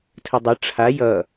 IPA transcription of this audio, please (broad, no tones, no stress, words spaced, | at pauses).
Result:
tʰədˤʌ ʈ͡ʂʰa jʌ